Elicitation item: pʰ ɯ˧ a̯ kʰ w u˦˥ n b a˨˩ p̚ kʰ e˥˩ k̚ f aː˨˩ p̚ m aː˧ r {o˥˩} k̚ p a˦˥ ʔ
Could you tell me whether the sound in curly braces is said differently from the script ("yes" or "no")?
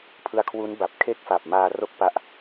no